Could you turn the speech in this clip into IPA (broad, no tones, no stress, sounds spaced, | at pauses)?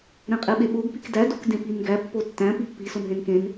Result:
ɾ ẽ qʼ e ɓ e ɓ o ɡ p i k d æ d o k d ẽ p i n ɡ æ pː o tː æ̃ p i pː i s o n ɦ ẽ n k ẽ n